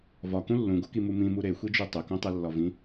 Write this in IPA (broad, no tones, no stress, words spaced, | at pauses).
vɒkũ lːũɡokimu mĩmu ɾexʷid͡ʒu tˤɵkũtˤɛlːɒ vĩ